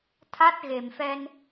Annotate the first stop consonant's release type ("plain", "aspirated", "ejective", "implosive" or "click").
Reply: aspirated